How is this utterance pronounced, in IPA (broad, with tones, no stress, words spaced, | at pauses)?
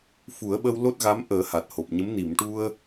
fu˨˩˦ə̯ɓə˧w lo˦˥t̚ɣa˧˥mʔəː˨˩˦ ha˨˩t̚ho˨˩p̚ɲə˧˥m ni˨˩˨mʈu˧ə̯